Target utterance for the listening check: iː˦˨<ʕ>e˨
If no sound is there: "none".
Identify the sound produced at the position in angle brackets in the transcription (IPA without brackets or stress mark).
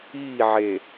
ʕ